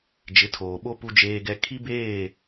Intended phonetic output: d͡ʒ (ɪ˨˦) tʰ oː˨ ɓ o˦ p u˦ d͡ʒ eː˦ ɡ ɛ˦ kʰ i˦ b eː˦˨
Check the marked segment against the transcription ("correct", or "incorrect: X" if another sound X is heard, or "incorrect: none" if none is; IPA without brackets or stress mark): correct